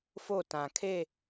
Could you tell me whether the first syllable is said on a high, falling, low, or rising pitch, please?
falling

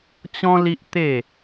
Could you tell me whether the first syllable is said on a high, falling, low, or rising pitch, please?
high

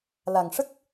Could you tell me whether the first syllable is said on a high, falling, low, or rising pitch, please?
low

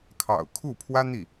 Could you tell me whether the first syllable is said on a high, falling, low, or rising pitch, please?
low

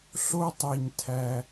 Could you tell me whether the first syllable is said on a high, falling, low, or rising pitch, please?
high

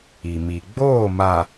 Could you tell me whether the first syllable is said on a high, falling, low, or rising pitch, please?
low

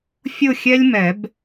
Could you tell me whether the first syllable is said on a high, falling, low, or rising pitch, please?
falling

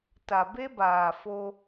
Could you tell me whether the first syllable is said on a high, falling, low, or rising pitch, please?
low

